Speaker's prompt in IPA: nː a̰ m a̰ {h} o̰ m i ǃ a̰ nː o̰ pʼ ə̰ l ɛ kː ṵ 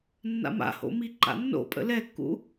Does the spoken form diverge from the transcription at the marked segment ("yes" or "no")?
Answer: no